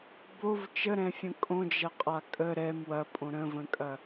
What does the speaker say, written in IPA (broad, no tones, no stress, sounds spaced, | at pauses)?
b o v t͡ʃ ə ɾ ɛ̃ fʲ ə̃ kʼ õ d͡ʒ ɐ qʼ a kʼ ə ɾ ɛ m w ɐ pʼ õ ɾ ə̃ v ə̃ kʼ ɐ